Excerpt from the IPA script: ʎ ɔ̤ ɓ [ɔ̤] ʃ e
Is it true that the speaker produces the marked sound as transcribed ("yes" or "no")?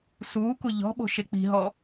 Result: no